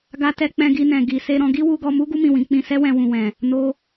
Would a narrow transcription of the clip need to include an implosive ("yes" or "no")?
no